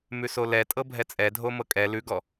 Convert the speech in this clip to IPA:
mʉsolɛtʼɤ bʱɛt͡sʼɛ dʱomɤkʼɛ lʉɡɔ

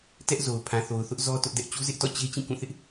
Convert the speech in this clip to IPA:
tɛ˦ʔ zo˨ʊ̯ pʰã˨θo˨ʊ̯θʊ˦ʔ zɔ˦ tʊ˦ʔdɛ˦ʔ t͡ɕu˦zɪ˦ʔtɔ̰˦˨ t͡ɕe˦ t͡ɕĩ˦˨kũ˦˨θɪ˦ʔ

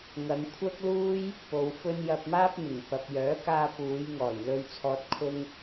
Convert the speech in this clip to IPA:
ŋɐ˨˧ŋkʷʰɐ˥k̚luː˥j | po˨wfɵ˧n jɐ˧p̚maː˥p̚mɪ˨˩ŋ pɐ˨p̚jœː˨˥ kaː˧puː˨˧jŋɔː˨˩j lɵ˧ɥt͡sʰɔː˧t̚ kʰʊ˥ŋ

